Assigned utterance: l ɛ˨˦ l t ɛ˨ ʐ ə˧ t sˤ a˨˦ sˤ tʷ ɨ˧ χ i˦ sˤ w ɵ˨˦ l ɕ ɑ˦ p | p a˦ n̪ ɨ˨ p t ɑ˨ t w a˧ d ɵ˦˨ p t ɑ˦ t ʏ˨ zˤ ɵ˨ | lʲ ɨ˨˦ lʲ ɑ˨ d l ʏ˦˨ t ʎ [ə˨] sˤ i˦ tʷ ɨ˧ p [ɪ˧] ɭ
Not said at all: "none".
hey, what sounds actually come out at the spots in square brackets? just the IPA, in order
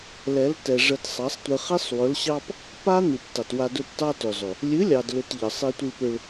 ə˨, ʏ˧

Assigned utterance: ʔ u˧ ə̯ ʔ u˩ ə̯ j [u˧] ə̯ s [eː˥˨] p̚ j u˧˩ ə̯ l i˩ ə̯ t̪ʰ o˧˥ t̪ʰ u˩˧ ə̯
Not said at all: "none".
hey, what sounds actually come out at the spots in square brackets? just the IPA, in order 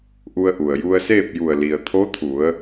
u˧, eː˥˨

